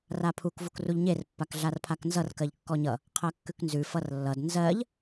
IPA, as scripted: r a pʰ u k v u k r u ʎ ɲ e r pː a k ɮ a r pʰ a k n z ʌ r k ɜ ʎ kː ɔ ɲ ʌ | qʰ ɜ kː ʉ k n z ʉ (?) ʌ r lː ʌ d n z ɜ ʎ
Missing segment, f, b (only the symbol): f